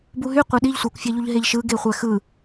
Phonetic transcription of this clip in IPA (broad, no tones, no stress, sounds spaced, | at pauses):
b u ɦ y qʷ e ɗ i ʎ sʷ e kʷ fʲ æ ʎ u ʎ ɦ e ʎ ʃ ɯ ɡ e χʷ æ x ɯ